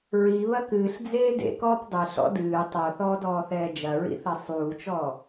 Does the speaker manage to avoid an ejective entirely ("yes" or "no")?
yes